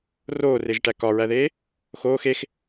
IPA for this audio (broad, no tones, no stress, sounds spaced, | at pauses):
r oː r e ʒ ʈ æ k ɒ ɹ æ ð eː | x oː x e x